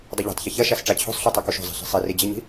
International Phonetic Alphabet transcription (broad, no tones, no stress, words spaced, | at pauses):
dˤɪʎo̤tˤçɪ çɐʃas ʈ͡ʂat͡ɕʰo̤sˤɬu tˤɐkuʃo̤zˤi̤ ɬi̤sˤiri d͡ʑiɲi̤